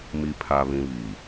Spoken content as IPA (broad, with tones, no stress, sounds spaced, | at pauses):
m i˨ pʰ a˨ β ĩ˨ β i˨